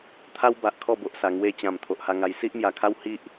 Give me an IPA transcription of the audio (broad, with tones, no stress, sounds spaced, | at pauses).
t̪ʰ a˦ w b a˨ ʔ kʰ ɔ˥˧ b o˨ ʔ s a˨˩ ŋ w e˧ t͡ɕ ã˨˩ m t̪ʰ o˨ ʔ h a˧ ŋ a˧ j s i˦ ʔ m j a˨˩ kʰ a˦ w h i˦ ʔ